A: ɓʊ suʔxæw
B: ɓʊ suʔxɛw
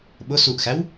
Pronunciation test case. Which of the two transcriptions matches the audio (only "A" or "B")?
A